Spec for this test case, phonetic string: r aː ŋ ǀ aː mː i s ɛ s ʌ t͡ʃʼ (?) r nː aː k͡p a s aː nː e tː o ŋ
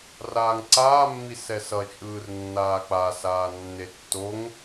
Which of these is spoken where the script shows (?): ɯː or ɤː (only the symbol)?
ɯː